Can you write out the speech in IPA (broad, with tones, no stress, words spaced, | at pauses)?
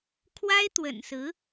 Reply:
kʰwa˥ɪ̯t̪wə̰˨˩nsɹ̩˧˥